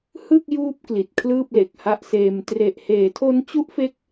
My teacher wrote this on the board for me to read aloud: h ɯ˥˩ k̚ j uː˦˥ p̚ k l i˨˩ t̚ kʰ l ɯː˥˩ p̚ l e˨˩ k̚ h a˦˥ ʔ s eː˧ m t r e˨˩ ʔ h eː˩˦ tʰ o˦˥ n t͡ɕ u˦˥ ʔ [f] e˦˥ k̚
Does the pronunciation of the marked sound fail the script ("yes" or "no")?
no